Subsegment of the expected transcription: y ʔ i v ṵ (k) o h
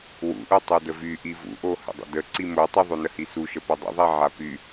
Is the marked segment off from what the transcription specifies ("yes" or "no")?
yes